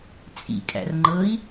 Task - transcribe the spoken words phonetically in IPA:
t͡sʼ ḭ kʼ æ̰ r ŋ͡ǃ ɤ i̯

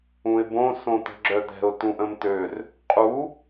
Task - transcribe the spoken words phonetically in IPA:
ũ ɪ̯ b õ s õ t̪ ə̤ ɡ͡ǁ œ d̪ ɛ̤ ʊ̯ t ũ ʔ ə̃ m t̪ ø r | qʼ u

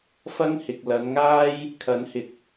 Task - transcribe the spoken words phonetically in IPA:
f ɐ˥ ŋ h ɪ˨ k̚ l ɐ˨˧ n ŋ aː˥ j | kʰ ɐ˨˥ n h ɪ˨˥ k̚

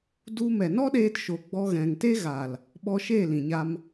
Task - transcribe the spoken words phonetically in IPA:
d u˦ m ɛ˨ n ɔ˦ ɗ eː˧ t ʃ o˨ ɡ͡b ɔ˧ ɣ ɛ̃˨ ŋ t e˦ ɣ a˨ l | ɓ ɔ˧ ʃ e˦˨ l ĩ˨ ɲ a˧ m

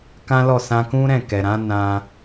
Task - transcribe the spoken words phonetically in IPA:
k ã˦ l ɔ˦˨ s ã˧ k ũ˦ ɾ ɛ̃˦˨ k ɛ˨ ɾ ã˨˦ n ã˦

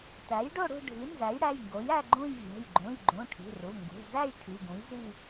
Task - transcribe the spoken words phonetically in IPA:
t æ˩˥ j ɖ o˥˧ ɽ ṳ˥˧ ɖʱ i˩˥ n z æ˩˥ j ɽ æ˩˧˩ j ŋ ɡ o˩˥ j æ˥˧ ɡ͡ǃ ũ˥˧ j vʲ æ̤˩˧˩ j ɡ͡ǃ ũ˩˧˩ j ɡ͡ǃ ũ˩˧˩ ʈʰ i̤˩˧˩ r u˩˧˩ ŋ ɡ ṳ˩˧˩ z æ˥˧ j ʈʰ i˩˧˩ ɡ ũ˩˥ j z i˥˧

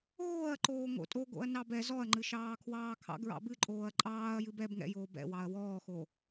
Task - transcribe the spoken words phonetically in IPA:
oː ɐ̯ ǃ oː ŋ o̰ tʼ o ɡ o̰ ɐ̯ n ɑ b ɛ z ɔ ɐ̯ ŋ͡ǃ ɨ ʃ ɑː kʰ w ɑː kʰ ɑ̰ ɡ ɹ ɑ̰ b ɨ ǃʼ oː ɐ̯ ǃʼ ɑː ɐ̯ j ɨ b ɛ b ŋ ɛ̰ j oː b ɛ̰ w ɑ ɐ̯ w ɔː x o

